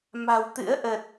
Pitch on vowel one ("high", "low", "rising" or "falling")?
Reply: low